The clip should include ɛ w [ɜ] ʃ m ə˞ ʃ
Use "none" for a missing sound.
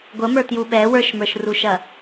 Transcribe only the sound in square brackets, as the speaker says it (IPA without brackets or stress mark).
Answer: ə˞